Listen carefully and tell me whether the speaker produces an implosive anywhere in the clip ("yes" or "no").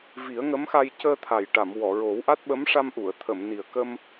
yes